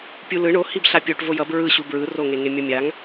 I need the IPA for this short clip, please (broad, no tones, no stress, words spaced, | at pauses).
pʲulɯ ɳo hibɬapʲoʈ vojʌb ɹɯɕu bɹɯroŋeŋe mʲʌmʲaŋ